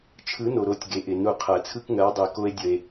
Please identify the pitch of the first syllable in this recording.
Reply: rising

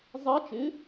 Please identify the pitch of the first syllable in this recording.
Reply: rising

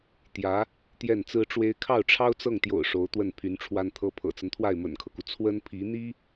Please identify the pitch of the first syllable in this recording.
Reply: rising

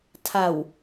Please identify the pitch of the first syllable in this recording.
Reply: low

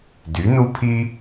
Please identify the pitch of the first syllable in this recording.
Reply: rising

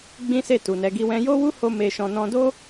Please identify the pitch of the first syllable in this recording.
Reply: high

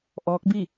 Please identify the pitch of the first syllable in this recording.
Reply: rising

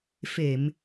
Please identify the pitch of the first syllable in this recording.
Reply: low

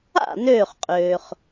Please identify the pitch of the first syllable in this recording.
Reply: falling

